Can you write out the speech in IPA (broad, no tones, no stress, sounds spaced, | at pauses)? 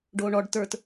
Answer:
ɖ oː ɳ ɔ ɖ t ə˞ t